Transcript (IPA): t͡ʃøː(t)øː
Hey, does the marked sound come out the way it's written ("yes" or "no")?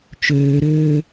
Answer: no